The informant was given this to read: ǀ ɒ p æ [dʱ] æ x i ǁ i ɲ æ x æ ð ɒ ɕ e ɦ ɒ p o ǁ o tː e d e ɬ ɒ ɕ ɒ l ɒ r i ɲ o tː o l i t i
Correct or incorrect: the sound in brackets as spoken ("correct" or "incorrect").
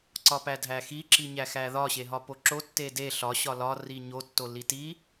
correct